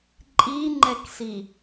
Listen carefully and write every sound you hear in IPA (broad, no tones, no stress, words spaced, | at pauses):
ǃʼiŋ͡ǃɛksi